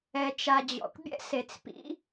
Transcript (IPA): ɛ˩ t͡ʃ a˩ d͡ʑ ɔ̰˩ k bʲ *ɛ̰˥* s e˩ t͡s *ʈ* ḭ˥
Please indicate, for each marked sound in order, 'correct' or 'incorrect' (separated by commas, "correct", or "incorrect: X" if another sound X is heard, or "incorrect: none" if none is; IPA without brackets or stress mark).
correct, incorrect: p